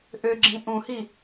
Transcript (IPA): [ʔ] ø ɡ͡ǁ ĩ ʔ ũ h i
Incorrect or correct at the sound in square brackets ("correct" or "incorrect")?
correct